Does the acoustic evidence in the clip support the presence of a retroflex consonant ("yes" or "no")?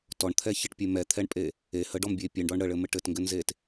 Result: yes